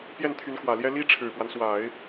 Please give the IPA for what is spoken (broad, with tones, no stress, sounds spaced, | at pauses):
p j ɛ˥˩ n t̪ʰ y˧˥ n k w ä˨˩ l j ɛ˥ l i˥ ʈ͡ʂʰ ɻ̩˨˩ p w a˦ n s w a˨˩˦ ɪ̯